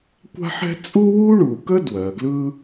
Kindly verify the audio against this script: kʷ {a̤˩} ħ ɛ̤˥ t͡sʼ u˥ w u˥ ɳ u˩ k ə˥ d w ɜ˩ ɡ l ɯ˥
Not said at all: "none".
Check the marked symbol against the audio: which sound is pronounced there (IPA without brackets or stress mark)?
a̤˥